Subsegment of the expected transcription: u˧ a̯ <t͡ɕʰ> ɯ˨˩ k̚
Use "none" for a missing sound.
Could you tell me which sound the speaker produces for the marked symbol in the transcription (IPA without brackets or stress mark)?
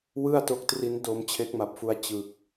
t͡ɕ